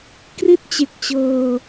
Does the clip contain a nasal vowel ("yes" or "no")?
no